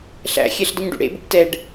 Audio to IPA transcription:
ɬ æ̰ xʲ ɛ ɬ d ə ɲ ɖ ṵ ɽ ḛ b ə̰ b t ɛ ɖ

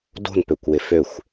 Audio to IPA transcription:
d o̤ n p ø kʷ w ɪ f ø xʷ

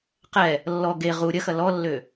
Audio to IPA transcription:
q ɛ | lː ɔ ɡ e ʁ u ɾʲ ɐ x ɐ l ɔ lː ø

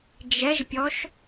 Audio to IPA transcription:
d͡ʒ ɛ ʒ pʲ ɔ ʃ

